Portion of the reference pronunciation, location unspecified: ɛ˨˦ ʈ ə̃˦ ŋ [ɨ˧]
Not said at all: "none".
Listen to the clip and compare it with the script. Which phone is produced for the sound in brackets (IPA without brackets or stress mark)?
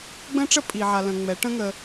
ə˧